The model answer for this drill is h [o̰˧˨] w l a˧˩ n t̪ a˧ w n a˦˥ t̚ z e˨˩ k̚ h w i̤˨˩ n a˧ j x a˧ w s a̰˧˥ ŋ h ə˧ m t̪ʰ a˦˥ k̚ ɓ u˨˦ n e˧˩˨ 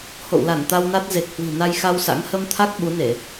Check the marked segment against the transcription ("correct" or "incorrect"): correct